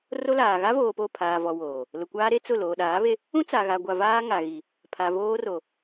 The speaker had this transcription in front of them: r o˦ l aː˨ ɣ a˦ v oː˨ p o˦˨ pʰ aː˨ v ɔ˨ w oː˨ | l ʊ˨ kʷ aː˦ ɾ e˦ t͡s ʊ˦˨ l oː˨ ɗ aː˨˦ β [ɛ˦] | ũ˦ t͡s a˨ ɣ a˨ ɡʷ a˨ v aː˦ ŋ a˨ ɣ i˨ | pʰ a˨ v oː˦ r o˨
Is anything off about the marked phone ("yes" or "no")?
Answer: yes